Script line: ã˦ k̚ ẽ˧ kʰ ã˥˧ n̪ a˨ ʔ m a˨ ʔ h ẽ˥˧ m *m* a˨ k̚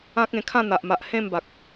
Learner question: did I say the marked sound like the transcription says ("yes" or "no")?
no